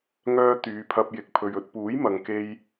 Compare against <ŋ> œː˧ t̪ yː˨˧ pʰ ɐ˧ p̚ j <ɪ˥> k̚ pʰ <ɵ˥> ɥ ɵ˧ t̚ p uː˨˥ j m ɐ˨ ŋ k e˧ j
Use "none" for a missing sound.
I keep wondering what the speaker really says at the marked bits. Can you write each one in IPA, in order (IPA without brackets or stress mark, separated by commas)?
ŋ, ɪ˨, ɵ˧